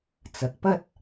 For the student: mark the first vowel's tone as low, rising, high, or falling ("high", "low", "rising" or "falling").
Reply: rising